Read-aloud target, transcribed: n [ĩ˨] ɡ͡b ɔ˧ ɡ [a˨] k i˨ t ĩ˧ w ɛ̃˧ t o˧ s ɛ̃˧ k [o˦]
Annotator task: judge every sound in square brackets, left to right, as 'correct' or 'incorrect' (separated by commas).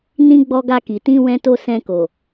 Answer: incorrect, incorrect, incorrect